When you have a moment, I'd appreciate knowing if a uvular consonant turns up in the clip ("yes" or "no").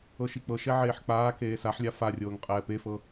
yes